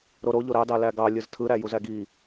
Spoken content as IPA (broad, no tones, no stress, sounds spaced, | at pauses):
ɾ o ɾ o ʎ o ɾ ɑ d ɑ l æ ɡ ɑ lʲ ɯ z tʰ ɯ ɾ æ j u z æ ɡ i